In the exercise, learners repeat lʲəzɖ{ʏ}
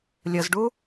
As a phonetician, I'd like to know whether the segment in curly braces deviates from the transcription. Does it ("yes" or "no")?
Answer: yes